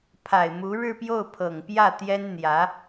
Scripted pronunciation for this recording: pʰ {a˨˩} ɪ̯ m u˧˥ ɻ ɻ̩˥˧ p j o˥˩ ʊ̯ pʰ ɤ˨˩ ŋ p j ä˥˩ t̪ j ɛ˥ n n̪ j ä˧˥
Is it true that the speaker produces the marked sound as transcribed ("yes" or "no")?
yes